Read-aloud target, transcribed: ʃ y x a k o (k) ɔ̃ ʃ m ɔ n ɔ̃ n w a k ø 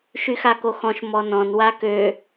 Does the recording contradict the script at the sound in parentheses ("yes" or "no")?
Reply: yes